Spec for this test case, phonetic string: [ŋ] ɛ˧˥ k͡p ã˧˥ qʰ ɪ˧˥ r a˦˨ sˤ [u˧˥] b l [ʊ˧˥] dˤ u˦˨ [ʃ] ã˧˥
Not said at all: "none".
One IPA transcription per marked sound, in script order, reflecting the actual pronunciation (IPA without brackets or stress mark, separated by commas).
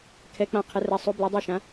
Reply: kʰ, u˧˥, ʊ˧˥, ʃ